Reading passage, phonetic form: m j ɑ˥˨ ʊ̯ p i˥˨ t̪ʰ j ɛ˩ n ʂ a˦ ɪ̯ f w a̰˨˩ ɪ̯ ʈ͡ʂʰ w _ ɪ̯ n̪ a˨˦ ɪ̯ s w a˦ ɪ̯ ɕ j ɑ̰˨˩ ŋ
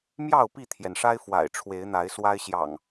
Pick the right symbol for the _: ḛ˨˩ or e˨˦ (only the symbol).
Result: e˨˦